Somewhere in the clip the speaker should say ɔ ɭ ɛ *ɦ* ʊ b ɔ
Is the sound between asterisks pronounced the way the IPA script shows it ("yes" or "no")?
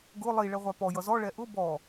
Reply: no